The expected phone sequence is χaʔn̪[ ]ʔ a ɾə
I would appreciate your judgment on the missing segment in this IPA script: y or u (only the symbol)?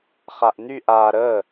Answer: y